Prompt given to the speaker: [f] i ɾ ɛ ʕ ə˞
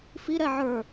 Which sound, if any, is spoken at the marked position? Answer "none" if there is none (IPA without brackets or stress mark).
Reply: f